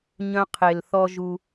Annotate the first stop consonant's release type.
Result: aspirated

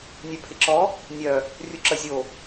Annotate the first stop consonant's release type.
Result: aspirated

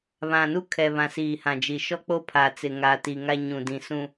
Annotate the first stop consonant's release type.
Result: aspirated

